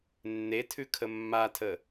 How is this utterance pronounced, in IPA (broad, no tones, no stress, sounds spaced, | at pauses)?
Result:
nː e tʰ ʉ kʰ ə mː a tʰ ə